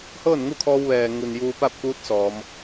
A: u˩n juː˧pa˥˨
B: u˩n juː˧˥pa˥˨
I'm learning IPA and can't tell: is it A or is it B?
A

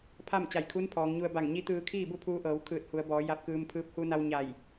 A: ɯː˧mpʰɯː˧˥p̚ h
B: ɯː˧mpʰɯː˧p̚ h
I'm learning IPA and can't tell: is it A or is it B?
A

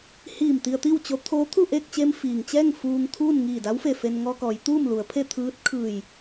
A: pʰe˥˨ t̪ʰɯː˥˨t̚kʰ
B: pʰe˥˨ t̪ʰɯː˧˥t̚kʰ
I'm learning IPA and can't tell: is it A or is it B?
B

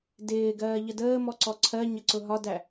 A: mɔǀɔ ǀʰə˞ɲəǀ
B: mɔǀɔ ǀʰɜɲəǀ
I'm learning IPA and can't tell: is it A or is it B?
B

